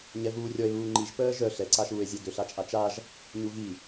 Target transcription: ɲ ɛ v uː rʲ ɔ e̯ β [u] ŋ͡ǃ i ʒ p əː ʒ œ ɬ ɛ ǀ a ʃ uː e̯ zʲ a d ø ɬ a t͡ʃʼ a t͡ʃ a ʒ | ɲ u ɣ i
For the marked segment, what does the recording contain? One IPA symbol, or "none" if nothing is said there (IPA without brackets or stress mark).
uː